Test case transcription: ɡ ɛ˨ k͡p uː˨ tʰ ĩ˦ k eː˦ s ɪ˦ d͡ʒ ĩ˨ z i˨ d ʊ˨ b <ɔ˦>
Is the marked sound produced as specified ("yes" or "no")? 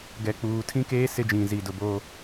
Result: no